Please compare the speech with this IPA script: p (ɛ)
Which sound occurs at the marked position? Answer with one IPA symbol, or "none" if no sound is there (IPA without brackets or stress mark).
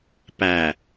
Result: æ